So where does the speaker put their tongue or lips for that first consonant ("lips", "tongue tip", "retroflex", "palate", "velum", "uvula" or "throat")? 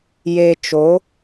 palate